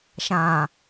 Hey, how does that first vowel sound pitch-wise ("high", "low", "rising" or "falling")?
low